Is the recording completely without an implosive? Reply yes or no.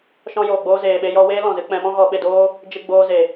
no